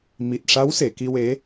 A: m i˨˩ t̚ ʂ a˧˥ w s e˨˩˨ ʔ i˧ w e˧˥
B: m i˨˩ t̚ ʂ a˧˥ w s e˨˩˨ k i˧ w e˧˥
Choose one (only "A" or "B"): B